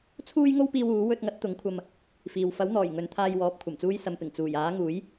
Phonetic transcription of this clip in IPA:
t͡sʰuː˥jŋo˥wpiː˧w uː˨˥ wɵ˧t̚ŋɐ˨˥t̚ t̪ʊ˨˥ŋkʷʰɐ˧m | fiː˨w fɐ˨˥wn̪ɔː˨˩j ŋɵ˨nt̪ʰaː˧jwɔː˨˥p̚ kʷʰɐ˨˩mt͡suː˧jsɐ˨mpɪ˨˩ŋ t͡suː˨˩jaː˨˥ŋuː˨˥j

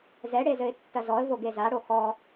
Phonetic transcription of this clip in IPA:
zɛɽe zɘɪ̯tːɐzɔə̯vo ɡezaɽo xɔ

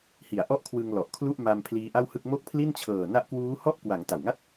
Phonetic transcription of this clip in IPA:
hi˨˩a̯ʔɔ˥˩ʔkʰwɯ˧ŋ lɔ˨˩ʔkʰlu˥˩ʔ ma˧m pʰliː˦˥ʔa˥˩whɯ˥˩k̚ mo˥˩k̚pʰli˥˩nt͡ɕʰɤː˨˩ na˦˥ʔkwuː˦˥hɔ˥˩ʔkwa˩˦ŋ ta˨˩wŋa˥˩t̚

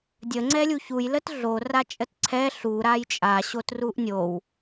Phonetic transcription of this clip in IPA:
dʲə ŋ͡ǀɛlʲuçuj lətɮo rat͡ʃʼətǀʰɛ ɬu ɾajt͡ʃʼa ɕotruʔnʲow

